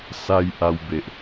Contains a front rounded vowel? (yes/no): no